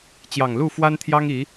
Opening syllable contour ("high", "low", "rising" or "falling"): low